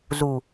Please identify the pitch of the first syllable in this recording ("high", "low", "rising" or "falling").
low